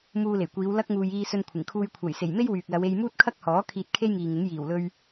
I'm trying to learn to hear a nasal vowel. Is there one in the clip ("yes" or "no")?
no